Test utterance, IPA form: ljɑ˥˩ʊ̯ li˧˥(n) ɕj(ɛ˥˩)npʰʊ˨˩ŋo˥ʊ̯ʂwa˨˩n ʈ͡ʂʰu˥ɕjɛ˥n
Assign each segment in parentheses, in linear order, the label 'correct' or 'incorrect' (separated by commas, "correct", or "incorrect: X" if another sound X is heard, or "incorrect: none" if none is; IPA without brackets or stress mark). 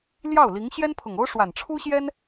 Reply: incorrect: ŋ, incorrect: ɛ˥